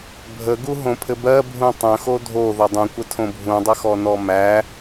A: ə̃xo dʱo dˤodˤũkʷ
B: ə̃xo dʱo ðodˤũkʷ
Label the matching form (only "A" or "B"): B